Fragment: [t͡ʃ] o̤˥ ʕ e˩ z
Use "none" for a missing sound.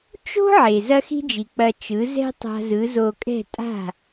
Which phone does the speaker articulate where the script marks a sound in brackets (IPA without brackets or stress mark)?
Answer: t͡ʃ